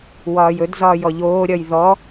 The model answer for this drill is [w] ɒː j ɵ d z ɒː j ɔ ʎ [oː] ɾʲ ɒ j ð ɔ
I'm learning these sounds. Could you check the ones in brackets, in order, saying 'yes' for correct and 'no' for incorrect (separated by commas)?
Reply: yes, yes